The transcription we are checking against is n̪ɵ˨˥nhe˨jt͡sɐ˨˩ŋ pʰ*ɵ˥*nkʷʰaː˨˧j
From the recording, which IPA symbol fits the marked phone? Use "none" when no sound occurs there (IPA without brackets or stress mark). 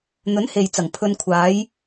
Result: ɵ˨